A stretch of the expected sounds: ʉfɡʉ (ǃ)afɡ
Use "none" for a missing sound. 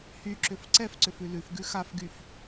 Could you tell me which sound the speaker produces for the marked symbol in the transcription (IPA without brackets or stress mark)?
x